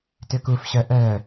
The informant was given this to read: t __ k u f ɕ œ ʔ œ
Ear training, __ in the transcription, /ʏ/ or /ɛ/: ʏ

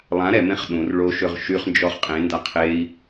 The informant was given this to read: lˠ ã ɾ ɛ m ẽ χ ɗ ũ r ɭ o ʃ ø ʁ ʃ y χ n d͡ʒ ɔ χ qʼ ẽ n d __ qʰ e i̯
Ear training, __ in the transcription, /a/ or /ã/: a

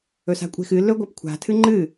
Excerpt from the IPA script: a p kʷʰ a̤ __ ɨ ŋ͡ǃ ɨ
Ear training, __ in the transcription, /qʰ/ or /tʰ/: tʰ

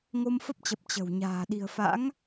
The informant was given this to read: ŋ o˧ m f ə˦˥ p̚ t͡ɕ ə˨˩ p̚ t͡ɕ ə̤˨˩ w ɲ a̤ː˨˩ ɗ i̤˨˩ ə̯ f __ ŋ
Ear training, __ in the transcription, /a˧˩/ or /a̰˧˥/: a̰˧˥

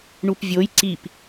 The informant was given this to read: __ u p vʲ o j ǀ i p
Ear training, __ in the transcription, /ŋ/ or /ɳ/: ɳ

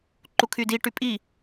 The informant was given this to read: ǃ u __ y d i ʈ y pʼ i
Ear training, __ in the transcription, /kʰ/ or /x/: kʰ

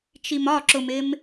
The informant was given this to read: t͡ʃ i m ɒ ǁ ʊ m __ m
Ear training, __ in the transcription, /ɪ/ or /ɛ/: ɪ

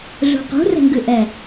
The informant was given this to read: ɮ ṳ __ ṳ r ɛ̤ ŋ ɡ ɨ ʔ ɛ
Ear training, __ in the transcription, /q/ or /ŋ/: q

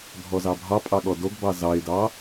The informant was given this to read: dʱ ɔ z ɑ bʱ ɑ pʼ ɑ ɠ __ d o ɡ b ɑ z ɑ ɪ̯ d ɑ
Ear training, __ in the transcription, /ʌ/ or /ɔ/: ɔ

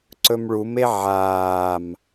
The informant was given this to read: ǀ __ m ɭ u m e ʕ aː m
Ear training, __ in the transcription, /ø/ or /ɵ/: ɵ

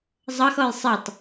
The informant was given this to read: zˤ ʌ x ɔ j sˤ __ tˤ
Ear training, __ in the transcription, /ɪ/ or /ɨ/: ɪ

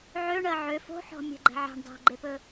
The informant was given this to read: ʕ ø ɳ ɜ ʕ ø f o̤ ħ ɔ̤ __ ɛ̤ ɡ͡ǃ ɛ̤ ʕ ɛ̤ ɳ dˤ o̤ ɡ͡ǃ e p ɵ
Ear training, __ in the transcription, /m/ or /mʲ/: mʲ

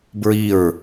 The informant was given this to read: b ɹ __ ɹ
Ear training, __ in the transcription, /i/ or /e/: i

